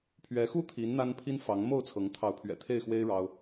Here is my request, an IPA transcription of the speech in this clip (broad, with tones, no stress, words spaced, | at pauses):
pʰɥɛ˨˦xu˥˨ t̪ʰi˨˦n n̪a˦npʰi˦n fɑ˨˦ŋmo˥˨ʊ̯t͡sʰɤ˨˦ŋ t̪ʰɑ˨˦ʊ̯pʰɥɛ̰˨˩t̪ʰe˥˨ɪ̯xwe˦ɪ̯ ɻɑ˦ʊ̯